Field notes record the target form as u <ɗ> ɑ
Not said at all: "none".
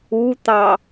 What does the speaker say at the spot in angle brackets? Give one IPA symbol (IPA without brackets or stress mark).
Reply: t̪